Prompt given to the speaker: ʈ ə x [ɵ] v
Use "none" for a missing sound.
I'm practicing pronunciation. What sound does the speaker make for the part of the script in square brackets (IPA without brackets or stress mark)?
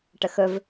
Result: ɵ